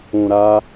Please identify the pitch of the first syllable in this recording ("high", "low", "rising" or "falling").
low